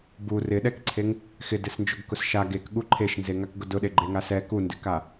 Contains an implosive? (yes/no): yes